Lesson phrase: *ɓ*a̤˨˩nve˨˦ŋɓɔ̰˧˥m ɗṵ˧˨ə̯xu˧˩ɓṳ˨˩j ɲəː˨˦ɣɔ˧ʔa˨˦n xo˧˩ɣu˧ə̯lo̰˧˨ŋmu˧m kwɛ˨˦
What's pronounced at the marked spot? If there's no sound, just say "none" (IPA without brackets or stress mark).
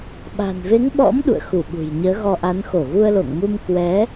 ɓ